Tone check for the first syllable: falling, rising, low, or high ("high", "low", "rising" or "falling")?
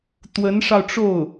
rising